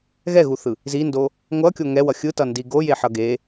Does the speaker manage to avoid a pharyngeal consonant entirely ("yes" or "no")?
no